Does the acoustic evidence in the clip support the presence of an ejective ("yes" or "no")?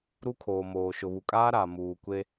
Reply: yes